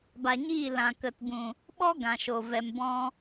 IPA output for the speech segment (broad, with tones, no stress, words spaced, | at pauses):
ba˨ɲiː˦˨ lã˨kə˨tbũ˨ | ɓɔ˦ ɡã˨ʃo˨ vɛ˨mbɔ̃˧